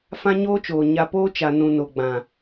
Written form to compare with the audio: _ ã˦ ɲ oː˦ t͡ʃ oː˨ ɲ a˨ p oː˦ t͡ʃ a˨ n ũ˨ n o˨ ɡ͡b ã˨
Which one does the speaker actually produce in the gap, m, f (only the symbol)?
f